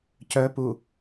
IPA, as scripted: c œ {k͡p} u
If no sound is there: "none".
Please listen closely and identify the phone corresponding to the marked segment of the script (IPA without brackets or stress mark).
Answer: p